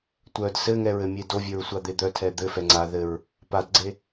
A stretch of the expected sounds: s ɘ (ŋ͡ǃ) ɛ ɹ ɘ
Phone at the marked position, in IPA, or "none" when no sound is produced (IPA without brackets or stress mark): ŋ